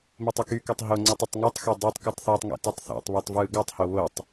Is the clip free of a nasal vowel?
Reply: yes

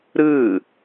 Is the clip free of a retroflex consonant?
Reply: yes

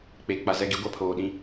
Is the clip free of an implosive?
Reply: no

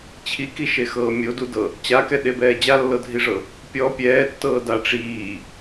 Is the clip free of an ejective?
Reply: yes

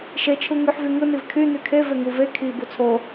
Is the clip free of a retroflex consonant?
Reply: yes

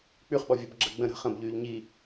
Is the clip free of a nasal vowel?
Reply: no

